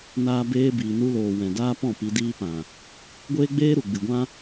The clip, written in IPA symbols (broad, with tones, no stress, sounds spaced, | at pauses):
n aː˧ b eː˧ b iː˨ n u˧ l oː˨ w ɛ̃˨ d aː˦ p ɔ̃˦˨ p i˧ d iː˦ p ã˨ | ɡʷ eː˦ ɡ͡b eː˦ ɾ u˨ ɡ͡b ɨ˨ ɡʷ ã˦